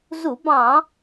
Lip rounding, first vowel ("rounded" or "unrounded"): rounded